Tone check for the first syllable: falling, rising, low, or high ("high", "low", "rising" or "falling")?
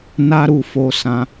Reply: high